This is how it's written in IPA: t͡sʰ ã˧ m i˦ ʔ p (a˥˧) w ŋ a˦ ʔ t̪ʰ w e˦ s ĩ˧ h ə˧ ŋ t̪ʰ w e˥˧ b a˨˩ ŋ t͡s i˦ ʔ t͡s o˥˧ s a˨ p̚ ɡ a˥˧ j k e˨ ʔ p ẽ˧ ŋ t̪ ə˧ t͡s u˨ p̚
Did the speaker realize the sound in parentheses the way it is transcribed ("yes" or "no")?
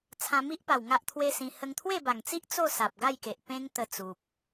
no